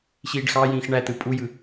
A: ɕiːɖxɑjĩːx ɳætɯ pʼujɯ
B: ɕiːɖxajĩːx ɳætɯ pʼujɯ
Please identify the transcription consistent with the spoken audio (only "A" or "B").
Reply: A